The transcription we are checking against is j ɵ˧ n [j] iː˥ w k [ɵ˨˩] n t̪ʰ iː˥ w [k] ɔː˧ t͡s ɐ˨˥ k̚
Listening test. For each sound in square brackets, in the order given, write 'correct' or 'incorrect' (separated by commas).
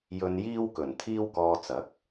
correct, correct, correct